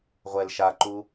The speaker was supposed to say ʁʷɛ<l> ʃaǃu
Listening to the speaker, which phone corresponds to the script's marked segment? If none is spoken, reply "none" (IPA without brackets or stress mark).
l